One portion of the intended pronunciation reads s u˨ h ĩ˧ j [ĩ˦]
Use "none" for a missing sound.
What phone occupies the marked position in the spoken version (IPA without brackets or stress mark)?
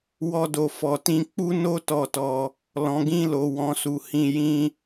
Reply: ĩ˦